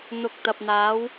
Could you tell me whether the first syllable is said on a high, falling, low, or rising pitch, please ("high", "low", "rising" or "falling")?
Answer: low